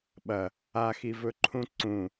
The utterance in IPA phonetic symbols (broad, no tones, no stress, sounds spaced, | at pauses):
ɓ ɐ | a x i v ɵ ǃʰ ũ ǀ ũ